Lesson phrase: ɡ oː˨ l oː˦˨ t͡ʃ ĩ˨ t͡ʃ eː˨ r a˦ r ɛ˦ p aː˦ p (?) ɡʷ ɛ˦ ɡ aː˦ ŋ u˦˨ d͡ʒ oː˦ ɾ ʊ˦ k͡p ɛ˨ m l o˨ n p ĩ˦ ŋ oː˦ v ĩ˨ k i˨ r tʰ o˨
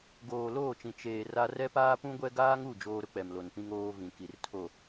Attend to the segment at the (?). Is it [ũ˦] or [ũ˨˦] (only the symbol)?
ũ˦